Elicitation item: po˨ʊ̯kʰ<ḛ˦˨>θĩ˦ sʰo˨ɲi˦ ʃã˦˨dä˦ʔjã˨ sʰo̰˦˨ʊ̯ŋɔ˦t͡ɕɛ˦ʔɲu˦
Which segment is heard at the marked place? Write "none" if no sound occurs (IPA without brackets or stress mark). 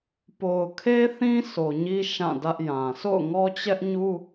e˦